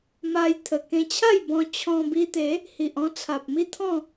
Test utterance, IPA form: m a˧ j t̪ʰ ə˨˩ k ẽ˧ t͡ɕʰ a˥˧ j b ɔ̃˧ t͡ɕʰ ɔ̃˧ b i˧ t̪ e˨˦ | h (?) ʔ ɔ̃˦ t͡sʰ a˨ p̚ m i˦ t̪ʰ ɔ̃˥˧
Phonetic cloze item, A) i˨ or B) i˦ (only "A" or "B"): A